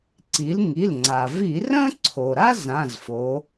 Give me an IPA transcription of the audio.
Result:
ǀ i˩˧ l ŋ i˩˧˩ l ŋ͡ǀ a˩ v i˧˩˧ r ə̃˥ ǀʰ o˩ ɾ a˥ z ã˩˧˩ z f o˩˧

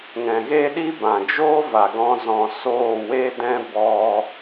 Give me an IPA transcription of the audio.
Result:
ŋ ɛ̃˨ ɣ e˦ ɗ i˦ b ã˨ d͡ʒ oː˦ v a˨ ɡ ɔ̃˧ z ɔ̃˨ s oː˦˨ w e˦ d ɛ̃˦ b ɔ˧

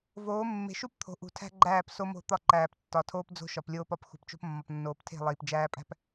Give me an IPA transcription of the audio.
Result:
v oː˨˦ mː e̤˨ ʃ u˦ p t̪ʰ o̤˨ ʔ ṳ˨ tʰ æ̤˦ ɡ͡ǃ æː˦˨ p s o˦ m o̤˦˨ t̪ ɒ˦˨ ǃ æː˨ p tː ɒ˨ tʰ oː˦ p d͡z o̤˦ ʃ ɒ˨ p lʲ oː˦ p ɒ˨ p x ṳ˨ p t͡ʃ o̤˦ p mː ɒ˨ p nː oː˨ p tʰ e̤˦˨ lˠ iː˨ p d͡ʒ æː˦ pʼ æ̤˦ p

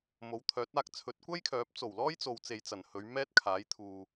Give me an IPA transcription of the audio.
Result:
m o˨˥ w t̪ʰ œː˨˥ t̚ aː˧ k̚ t͡sʰ ɵ˨˥ t̚ kʷ ɐ˥ j kʰ œː˨˥ p̚ t͡s o˨˩ w l ɔː˥ j t͡s o˨ w t͡s e˨ j t͡s ɐ˨˩ n h ɵ˨˧ ɥ m ɛː˥ t̚ kʰ aː˨˥ j t̪ʰ uː˨

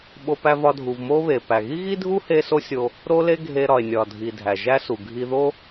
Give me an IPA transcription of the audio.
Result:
ɓ o˧ p æ˧ v ɒ˧ dʱ u˩ v m o˥ β e˩ p æ˩ ɣ i˥ ɣ i˥ dʱ u˥ h e˥ s o˥ sʲ o˧ | ɾ o˥ l e˥ ɡʱ e˧ ɾ ɒ˩ e̯ nʲ ɒ˩ dʱ i˩ dʱ æ˩ ʒ æ˥ s u˩ ɡʱ i˧ ð o˥

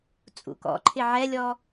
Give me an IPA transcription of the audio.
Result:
t͡sʼ ṵ k ɔ̰ ǃʰ ɪ ʕ ɛ lʲ ɔ

